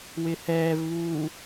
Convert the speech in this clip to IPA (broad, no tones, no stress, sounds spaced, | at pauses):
w ɪ h ɛː v β uː